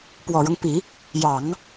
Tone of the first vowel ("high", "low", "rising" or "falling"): low